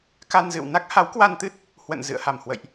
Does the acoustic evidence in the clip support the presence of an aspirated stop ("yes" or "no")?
no